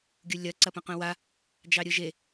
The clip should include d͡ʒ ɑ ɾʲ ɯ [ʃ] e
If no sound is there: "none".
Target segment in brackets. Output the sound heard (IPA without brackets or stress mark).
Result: ʒ